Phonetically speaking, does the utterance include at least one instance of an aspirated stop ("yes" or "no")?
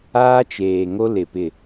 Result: no